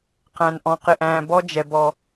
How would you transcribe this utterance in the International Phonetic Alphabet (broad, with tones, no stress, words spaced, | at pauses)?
qæ̃˨nʔɔ̃˨ qɪ˨ ʔæ̃ː˨ bɔ˦ d͡ʒɛ˨ bɔ˨